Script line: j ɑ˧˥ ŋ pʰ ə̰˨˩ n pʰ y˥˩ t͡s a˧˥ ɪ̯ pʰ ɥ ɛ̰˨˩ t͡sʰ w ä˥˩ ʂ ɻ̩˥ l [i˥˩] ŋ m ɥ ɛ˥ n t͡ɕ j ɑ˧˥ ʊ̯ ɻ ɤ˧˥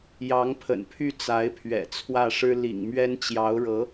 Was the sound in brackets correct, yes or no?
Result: no